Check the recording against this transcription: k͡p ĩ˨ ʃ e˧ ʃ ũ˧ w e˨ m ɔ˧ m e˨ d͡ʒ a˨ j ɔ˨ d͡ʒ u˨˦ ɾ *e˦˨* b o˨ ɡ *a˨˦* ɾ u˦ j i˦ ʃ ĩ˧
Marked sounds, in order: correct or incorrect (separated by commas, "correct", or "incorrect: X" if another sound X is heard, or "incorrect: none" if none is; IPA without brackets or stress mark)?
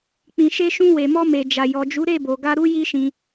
correct, incorrect: a˧